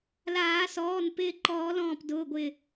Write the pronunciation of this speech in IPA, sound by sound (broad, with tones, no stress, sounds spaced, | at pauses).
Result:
l aː˨˩˦ s ɔː˩˧˩ n p ɪː˧˩ ǃ ɔː˨˩˦ l ɔ̃ː˧˩ p d ʊː˩˧˩ ɡʷ ɪ˧˩